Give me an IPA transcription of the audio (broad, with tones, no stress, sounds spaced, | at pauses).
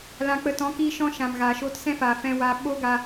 l ã˧ k͡p ə˧ t ɔ̃˨˦ k iː˧ ʃ ɔ̃˦ ʃ ã˨ m ɣ aː˨ ʃ oː˧ t s ɛ̃˦ f a˨ f ɛ̃˦ w a˦ ɓ o˦ ɡ a˧